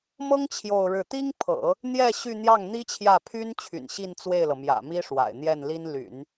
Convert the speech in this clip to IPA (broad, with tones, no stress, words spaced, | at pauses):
mɤ˥ŋ t͡ɕʰjo˥˧ʊ̯ɻɻ̩˥˩ t̪i˥ŋpʰɤ̰˨˩˦ | n̪jɛ˥˧ ɕy˥˧ n̪jɑ˥˩ŋn̪i˥t͡ɕʰjä˥˩ pʰy˥n t͡ɕʰy̰˨˩nɕi˥˧n t͡swe˥˩ɪ̯lɤ˩ mjä̰˨˩mi˥ʂwa̰˨˩ɪ̯ n̪jɛ˥˩nli˥n ly̰˨˩˦n